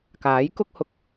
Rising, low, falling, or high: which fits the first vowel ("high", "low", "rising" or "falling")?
rising